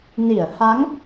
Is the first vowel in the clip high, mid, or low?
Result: high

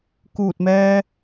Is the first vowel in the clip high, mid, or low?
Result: high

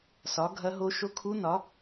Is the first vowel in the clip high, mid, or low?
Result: low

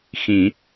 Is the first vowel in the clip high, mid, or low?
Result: high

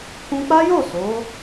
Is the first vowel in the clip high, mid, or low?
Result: high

